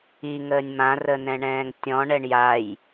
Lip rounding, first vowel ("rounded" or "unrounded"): unrounded